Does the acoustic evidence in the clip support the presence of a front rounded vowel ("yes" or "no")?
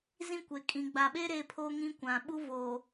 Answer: no